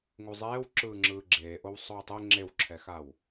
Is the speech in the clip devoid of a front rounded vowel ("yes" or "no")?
yes